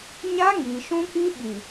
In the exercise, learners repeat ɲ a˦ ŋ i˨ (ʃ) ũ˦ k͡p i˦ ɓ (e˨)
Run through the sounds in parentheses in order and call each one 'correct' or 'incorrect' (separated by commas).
correct, incorrect